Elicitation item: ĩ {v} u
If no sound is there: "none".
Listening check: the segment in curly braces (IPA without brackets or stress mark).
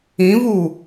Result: v